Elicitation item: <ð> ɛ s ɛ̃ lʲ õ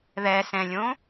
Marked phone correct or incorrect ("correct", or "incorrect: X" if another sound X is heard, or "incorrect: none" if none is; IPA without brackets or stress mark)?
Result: correct